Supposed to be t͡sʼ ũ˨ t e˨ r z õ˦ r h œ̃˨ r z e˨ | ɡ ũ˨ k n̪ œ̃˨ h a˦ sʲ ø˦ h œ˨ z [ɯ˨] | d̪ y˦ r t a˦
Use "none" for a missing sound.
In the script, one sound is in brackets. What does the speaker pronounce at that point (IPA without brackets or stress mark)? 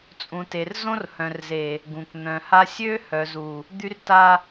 u˨